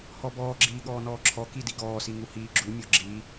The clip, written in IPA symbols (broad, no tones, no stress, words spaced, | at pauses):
hɔbɔːɡ͡ǁiː ɠɔːnɔːǁʰɔ kidiɡɔːsi ŋuhiːɡ͡ǁumʲɔ ɡ͡ǁi